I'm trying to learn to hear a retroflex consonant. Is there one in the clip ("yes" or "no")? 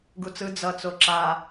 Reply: no